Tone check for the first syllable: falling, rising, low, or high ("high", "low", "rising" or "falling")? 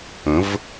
rising